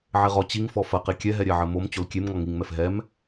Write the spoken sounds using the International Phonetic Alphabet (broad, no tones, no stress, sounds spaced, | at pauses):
ʕ e ʁ ɔ t͡ɕ i ŋ f ɔ f ɐ q i kʲ ɛ ɦ ɛ ɾʲ ɛ ʕ ɘ m o m t͡ɕ o l kʲ e m ŋ ɔ ŋ i ŋ m ɛ f ɦ ɛ m